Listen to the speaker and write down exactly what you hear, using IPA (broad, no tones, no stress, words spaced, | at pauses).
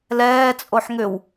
lɛːt͡sʼoħ ŋʏw